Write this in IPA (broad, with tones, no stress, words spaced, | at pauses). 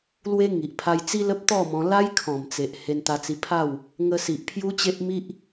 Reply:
lwe˦ŋi˨ʔ pʰa˧jt͡si˦lə˦p̚ t̪ɔ˥˧mɔ̃˧ la˦jkʰɔ̃˨˩mt͡se˨ʔ he˧nt̪a˧t͡si˧pʰa˥˧w | ŋə˧si˨ʔ pʰju˦t͡ɕe˦ʔmi˦ʔ